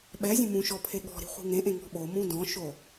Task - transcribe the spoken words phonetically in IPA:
ɓ ɛ zʲ ũ m ũ ʃ ɔ pʰ e ɠ ɔ̤ ɾ i̤ χʷ i̤ ŋ ẽ ʔ ẽ ŋ ɔ̤ ɓ o m ũ d ɔ̃ ʃ o

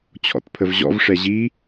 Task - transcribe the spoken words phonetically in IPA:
t͡ɕʰ ɔ̰ t pʰ ə v ʑ ɔ̰ v ʂ ɛ ʑ i

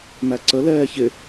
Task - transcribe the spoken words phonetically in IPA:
m æ ǀ ə l ɛː ç ɪ

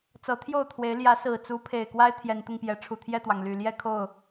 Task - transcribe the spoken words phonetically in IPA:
t͡s ɤ˨˦ t̪ʰ j o˥˨ ʊ̯ t̪ʰ w e˨˦ ɪ̯ l j ä˨˦ s ɹ̩˨˩ t͡s u˨˦ pʰ e˨˩ ɪ̯ k w a˦ ɪ̯ t̪ʰ j ɛ˨˦ n t̪ ʊ˧ ŋ p j ɛ˨˦ ʈ͡ʂʰ u˨˩ t̪ʰ j ɛ˥˨ t̪ w ɑ˩ ŋ l y˨˩ l j ɛ˥˨ kʰ o˥˨ ʊ̯

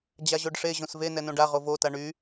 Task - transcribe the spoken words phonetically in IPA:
d͡ʑ a ʑ o ɖ ʂ e ʑ õ s v e n ɛ n õ ɖ a ʁ o v o t a ɳ y

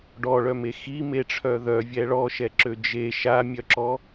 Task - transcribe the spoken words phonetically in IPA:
ɖ ɔ ɭ œ m e x i m e ʈ͡ʂʰ œ ð œ vʲ ɛ ɭ ɔ ʃ ɛ ǁ ø d͡ʒ e ʃ a mʲ œ ǁ ɔ

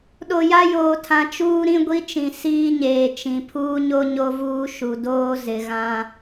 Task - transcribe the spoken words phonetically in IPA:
ɗ o˨ j a˦ j oː˨ tʰ ã˨ t͡ʃ uː˦ ɾ ĩ˦ ɡʷ i˦ t͡ʃ ĩ˨ s iː˦ ɲ eː˨ t͡ʃ ĩ˨ pʰ uː˦ ɲ o˦ ɲ o˦ v uː˦ ʃ u˨ d oː˦ z ɪ˨ ɣ ã˦

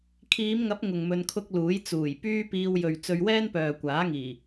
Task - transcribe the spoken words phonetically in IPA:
kʰ iː˨˧ m ŋ ɐ˨˥ p̚ ŋ ʊ˨ ŋ m ɵ˧ n kʰ ʊ˥ k̚ l uː˨˥ j t͡s uː˨˩ j p yː˥ p iː˧ w j ɵ˨ ɥ t͡s ɵ˧ ɥ w ɛː˥ n p œː˨ kʷ aː˨˥ ŋ iː˨˩

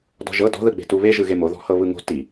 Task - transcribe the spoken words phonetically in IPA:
d ɔ̤ ʒ ɤ d ɔ̤ ð ɯ ɡ͡b e̤ t u β e ʒ ɯ ɣ e m o ð ɔ̤ h ɤ β ɯ ŋ o̤ t i

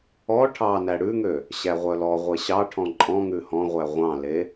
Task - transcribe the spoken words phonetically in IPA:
ɔ ʈʰ ɑ n æ ɽ ʉ ŋ ø | ɕ æ ʁʷ œ l ɔ ʁʷ e ɕ ɑ ʈʰ ɔ̃ ǃʼ ɔ̃ ŋ ʉ h ɔ̃ ʁʷ æ ʁʷ ɑ̃ l e

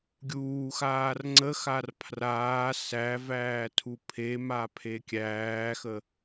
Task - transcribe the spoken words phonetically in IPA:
ɡʲ uː x aː r ŋ͡ǀ ə x a r pʰ r aː s æ v æː tʰ u pʰ e m a pʰ e kʲ æː x ə

